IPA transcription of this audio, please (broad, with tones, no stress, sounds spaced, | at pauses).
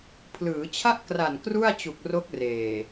pʰ l ɯː˩˦ t͡ɕʰ a˥˩ ʔ k r a˨˩ n k r u˥˩ a̯ t͡ɕ u˨˩ k̚ r o˦˥ k̚ r eː˨˩